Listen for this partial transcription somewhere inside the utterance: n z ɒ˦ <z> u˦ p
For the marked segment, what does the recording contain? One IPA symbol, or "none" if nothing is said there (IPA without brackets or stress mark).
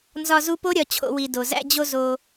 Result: z